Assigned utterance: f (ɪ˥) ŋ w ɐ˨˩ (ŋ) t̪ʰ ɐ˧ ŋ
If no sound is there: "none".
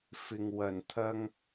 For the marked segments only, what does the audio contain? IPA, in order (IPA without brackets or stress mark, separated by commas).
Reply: ɪ˨, n